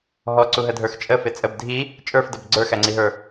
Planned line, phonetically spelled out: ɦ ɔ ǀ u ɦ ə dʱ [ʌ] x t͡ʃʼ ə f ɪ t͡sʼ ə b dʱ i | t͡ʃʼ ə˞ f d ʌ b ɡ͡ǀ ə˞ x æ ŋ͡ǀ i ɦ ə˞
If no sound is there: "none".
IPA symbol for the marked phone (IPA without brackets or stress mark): ə˞